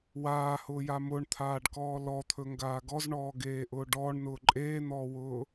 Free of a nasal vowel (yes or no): yes